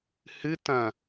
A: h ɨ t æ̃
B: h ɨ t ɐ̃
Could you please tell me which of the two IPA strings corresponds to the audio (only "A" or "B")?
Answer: B